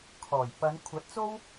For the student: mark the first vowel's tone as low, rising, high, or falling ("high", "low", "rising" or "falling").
low